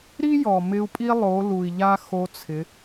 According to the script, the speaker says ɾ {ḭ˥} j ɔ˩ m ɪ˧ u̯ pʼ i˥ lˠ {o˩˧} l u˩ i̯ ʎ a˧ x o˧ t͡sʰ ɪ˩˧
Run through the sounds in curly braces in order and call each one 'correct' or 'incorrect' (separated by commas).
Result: incorrect, correct